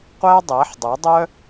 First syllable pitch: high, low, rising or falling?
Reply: high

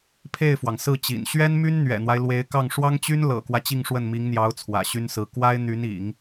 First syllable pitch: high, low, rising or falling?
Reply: falling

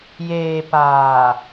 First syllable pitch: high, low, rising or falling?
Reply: low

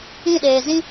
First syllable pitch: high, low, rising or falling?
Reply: falling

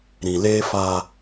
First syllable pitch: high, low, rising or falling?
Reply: low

